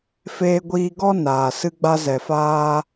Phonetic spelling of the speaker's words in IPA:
f eː˦ ɡʷ iː˦ ɡ ɔ˦ n aː˨ s ɨ˦ ɡ͡b a˦ z ɛ˨ f aː˧

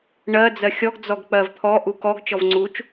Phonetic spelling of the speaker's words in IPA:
ɳ ɜ d͡z ɜ xʲ ɔ ɡ d͡z ɔ ɡ k͡p ɜ v t̪ʰ ɔ ʔ u k ɔ ɡ t͡ʃ ɔ v ŋ͡ǀ u t͡ʃ

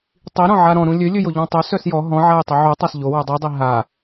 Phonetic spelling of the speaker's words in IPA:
tˤ i ɾ ɔ̃ ʕ a ɾ ɔ̃ ɾ ũ lʲ ø lʲ ø j o ʎ ɔ̃ tˤ ø s œ s j ɔ ɦ ɔ̃ ʕ a j tˤ o ʕ u tˤ a s ʎ o w u dˤ u dˤ i ɦ a

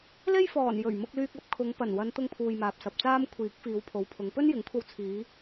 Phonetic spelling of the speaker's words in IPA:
l e˥ j f ɔː˨˩ n j ɵ˨˩ ɥ m ʊ˧ k̚ l yː˧ k̚ ɐ˨˥ p̚ kʰ ʊ˨˧ ŋ p ɐ˨˩ n w ɐ˨˧ n t̪ ʊ˧ ŋ pʰ uː˨ j m aː˨ p̚ s ɐ˨ p̚ t͡s aː˥ m kʷʰ iː˨˥ k̚ f iː˨˧ w pʰ o˨˧ w pʰ ʊ˨˧ ŋ p ɵ˥ n j ɪ˨˥ ŋ kʷʰ ɐ˧ w t͡sʰ iː˨˧

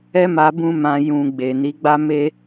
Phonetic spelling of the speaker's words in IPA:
ɛ˦ m a˧ b ũ˦ m ã˧ j ũ˨ ɡ͡b e˨ n i˨˦ ɡ͡b a˦ m e˦

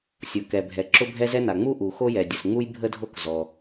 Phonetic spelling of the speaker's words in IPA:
sʲ o˩ k ɛ˩ bʱ ɛ˩ ǁ ʊ˥ bʱ ɛ˥ z ɛ˥ n a˩ ŋ͡m u˥ ʔ u˩ x o˥ j ɛ˩ dʲ ə˩ s ŋ͡m u˥ j bʱ ə˥ dʱ o˥ k z ɔ˩

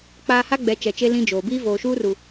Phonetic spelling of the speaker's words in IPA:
k͡p aː˨ h a˦ ɡ͡b ɛ˨˦ t͡ʃ ɛ˨ t͡ʃ e˦ l ĩ˦ d͡ʒ oː˨ b iː˦ v oː˨ ʃ uː˦ r u˨

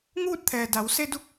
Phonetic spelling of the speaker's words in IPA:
ŋ uː˥˨ t̚ t̪ʰ ɛː˩ d a˩˧ w s e˧ d u˧˥ k̚

